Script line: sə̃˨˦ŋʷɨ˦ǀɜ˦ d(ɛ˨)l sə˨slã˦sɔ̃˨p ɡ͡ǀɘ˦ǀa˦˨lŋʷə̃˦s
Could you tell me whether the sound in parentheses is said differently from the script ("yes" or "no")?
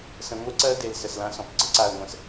yes